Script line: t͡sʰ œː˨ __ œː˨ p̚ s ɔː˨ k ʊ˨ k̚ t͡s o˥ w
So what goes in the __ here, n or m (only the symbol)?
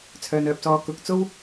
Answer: n